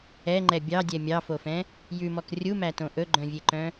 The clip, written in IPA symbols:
ɛ ŋ͡ǃ ɛ bʲ ɑ dʲ ɛ mʲ ɑ f o f ɛ̃ | j ʉ m ɔ k rʲ u m æ t õ ʔ ɵ ɡ͡ǃ œ̃ vʲ e ǃ œ̃

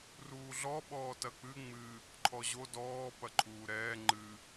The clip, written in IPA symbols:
r uː ɮ ɔ ɓ ɔː t ɐ k͡p ɨ ŋ͡m ɨ | ǃʰ ɔ ʑ o d ɔː p ɐ ǃʰ uː ɾ ɛː ŋ͡ǃ ɨ

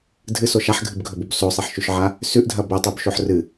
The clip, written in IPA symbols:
dʱ ɨ s o ʃ a ħ ɡʱ ɨ b ɡʱ ɵ b o b s o sˤ e ħ ʃ ʉ ʃ ʕ a | s ʉ ʔ dʱ ɐ b ɵ tˤ ʉ b ʃ o ħ r ɨ

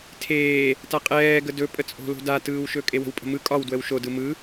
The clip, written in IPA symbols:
tʰ eː | t a qʼ ɛː ɡ ə d ɵ pʼ ə t͡sʼ o̤ l o̤ d a t ɯː w ʃ ɵ kʼ e w ə̤ w pʼ ə̤ m ɯ kʼ ɒ w d w ə w ʃ o d ɯ m ɯ

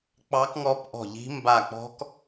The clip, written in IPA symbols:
k͡p ɑ˦˥ k ŋ ɔ˦˥ p ʔ ɔ̤˦˨ ʎ i̤˦˥ m b a˦˨ k͡p ɔ̤˦˥ k

